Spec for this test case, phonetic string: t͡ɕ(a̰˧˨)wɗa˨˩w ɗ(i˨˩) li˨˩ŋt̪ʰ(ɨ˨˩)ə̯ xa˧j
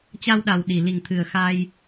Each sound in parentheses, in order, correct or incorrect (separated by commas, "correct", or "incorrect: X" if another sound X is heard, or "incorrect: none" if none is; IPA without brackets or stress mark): incorrect: a˧, correct, correct